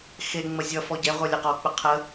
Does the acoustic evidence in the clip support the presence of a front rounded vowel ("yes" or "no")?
no